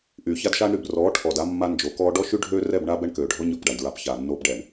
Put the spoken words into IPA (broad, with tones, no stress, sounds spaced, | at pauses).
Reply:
ʔ yː˨ ç a˦ d ʃ aː˦ ɳ ɾ y˨ b r ɔː˨˦ ʈʰ ɔ˨ d a˦ mː a˦ n d͡ʒ o˨˦ k ɔː˦ ɖ ɔ˦ ʃ y˦ ɖʱ øː˦ r ɛ˦˨ b ɳ aː˦ b ɛ˦ ɳ k øː˨ ɖʱ ɔ˦ ɲ ɔ˦˨ p ɖ a˨ ɳ d ɹ a˦ p ç aː˨ nː oː˦ b ɖ ɛ˨ ɳ